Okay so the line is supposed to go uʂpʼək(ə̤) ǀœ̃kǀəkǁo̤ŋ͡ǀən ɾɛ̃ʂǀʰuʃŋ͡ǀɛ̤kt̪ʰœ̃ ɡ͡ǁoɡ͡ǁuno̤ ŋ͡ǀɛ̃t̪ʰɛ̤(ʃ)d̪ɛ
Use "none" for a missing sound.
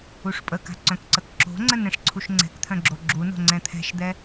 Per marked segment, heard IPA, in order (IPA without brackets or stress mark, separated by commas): a̤, ʃ